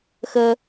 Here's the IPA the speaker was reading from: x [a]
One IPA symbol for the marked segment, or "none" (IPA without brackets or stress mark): ə